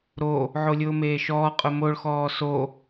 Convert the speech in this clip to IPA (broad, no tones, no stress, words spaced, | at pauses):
ɾo | ʕolʲʊːmeːʃɔː qʼʊmoɭ xɔːso